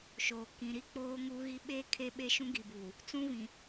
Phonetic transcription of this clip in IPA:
ʃ oː˨ k ĩ˨ ɾ i˦ k͡p oː˦ ŋ uː˦ ɣ i˦ ɓ eː˦ kʰ e˦ ɓ e˦ ʃ ũ˦ ɡ i˨ b uː˨ | t͡s ũ˦ β ĩ˨

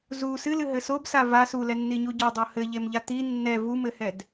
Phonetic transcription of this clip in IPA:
z u s ɨ l ɨ ɦ ɘ s o b s a v a s u l ɛ nː i ɲ u ɟ ɔ dˤ o h ɘ ʎ e m ʎ a t̪ i nː ɛ v u m ɘ h ɛ d

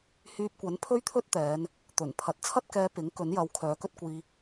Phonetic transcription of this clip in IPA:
h yː˧ p̚ kʷ ɐ˨˥ n pʰ ɵ˥ ɥ t̪ʰ ɵ˥ t̚ t̪ ɛː˨˧ n | t̪ ɵ˨˩ n pʰ ɐ˨˥ t̚ t͡sʰ ɐ˥ t̚ k ɛː˧ p ɪ˨˥ ŋ k ɵ˨˥ n j ɐ˨˧ w kʰ œː˨˧ k ɵ˥ t̚ kʷ iː˧

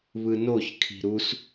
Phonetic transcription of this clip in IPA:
β ɯ n o ç kʰ i̤ ɾ u s

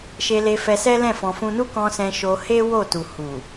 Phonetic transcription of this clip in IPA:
ʃ e˧ l e˧ f ɛ˧ s ɛ˦ l ɛ̃˦˨ f ɔ̃˧ f ũ˦ n u˦ k ɔ̃˧ s ɛ̃˧ ʃ o˧ h e˦ w o˦˨ t u˨ h u˨

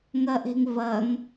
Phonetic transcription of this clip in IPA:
ŋ ɐ ʔ e̤ ŋ v ɐ ŋ

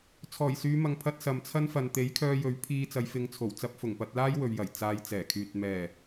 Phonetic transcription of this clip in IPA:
t͡sʰ ɔː˨˩ j s yː˨˧ m ɐ˨ ŋ pʰ ɐ˧ t̚ s ɐ˨ m t͡sʰ ɐ˥ n f ɐ˨ n t̪ e˨˥ j kʰ œː˧ j ɵ˨˥ ɥ pʰ iː˧ t͡s ɐ˨˧ j f ɪ˨˧ ŋ t͡sʰ o˨˩ w t͡s ɐ˧ p̚ f ʊ˨˩ ŋ p ɐ˧ t̚ l aː˥ j w ɵ˨ ɥ j ɐ˨˩ j t͡s aː˧ j t͡s ɛː˨˩ kʰ yː˨ t̚ m ɛː˨˩

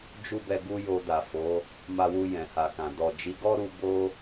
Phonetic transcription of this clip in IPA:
d͡ʒ u˦ b ɛ˧ ɡ u˦ j o˧ d a˨ f o˨˦ | m a˧ w u˧ j ɛ̃˨ h a˨ k ã˨ d ɔ˨ d͡ʒ i˨˦ ɡ ɔ˦ ɾ u˧ b o˦

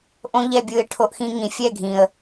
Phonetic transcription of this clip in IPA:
ʔ õ˦ ʎ ɛ˦˨ bʲ ɯ˧ ɪ̯ ʈʰ o˧ ʔ x ĩ˧ ŋ ĩ˨ fʲ ɛ˦˨ ɡʱ ĩ˨ ə̯

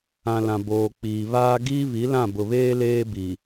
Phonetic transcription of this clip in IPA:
ã˨ l ã˨ b oː˨ k͡p iː˨ β aː˦ ɡ iː˦ β i˨˦ l ã˦˨ b ʊ˨ β eː˦ l eː˦ b i˨

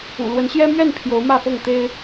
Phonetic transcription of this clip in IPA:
ṵ˨˩ l w ə˨˦ n ɕ j ɛ˦ m ɥ ɛ˥˨ n pʰ j o˨˦ ʊ̯ m ä˥˨ f ɤ˥˨ ŋ t̪ e˦ ɪ̯

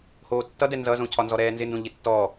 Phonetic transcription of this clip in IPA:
h oː tː ʌ d ɛ n z ʌ z õ cʰ ɒ n z ɔ ɾ ɛː n z ɪ n d õ ʎ ɪ tː ɔ

